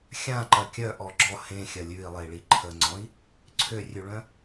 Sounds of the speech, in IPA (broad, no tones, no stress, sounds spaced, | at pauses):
xʲ ã ǃ ɐ kʲ œ ʔ ɔ ɡ͡ǁ ɔ h ẽ xʲ ɐ lʲ ʉ i̯ lˠ e i̯ ɭ i ǃʰ ə ŋ͡ǀ ɔ̃ i̯ | ǀʰ ø rʲ ʉ ɭ œ̃